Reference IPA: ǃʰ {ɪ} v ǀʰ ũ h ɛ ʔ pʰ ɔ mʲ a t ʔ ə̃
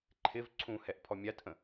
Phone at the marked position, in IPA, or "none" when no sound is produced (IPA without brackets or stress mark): ɪ